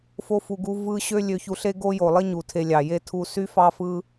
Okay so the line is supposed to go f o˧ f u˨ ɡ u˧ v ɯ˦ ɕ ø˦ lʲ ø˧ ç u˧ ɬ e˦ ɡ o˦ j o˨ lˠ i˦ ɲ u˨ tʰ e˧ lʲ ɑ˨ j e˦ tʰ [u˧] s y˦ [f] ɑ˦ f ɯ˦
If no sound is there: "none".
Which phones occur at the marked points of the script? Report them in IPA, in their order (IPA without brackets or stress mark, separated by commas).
u˧, f